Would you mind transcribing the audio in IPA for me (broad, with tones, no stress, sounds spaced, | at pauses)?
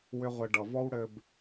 w ʏ˦ ʁʷ ɘ˧ ɖ ʌ˨ v ɔ˦ w ɽ ɘ˧ b